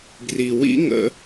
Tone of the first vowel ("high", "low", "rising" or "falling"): low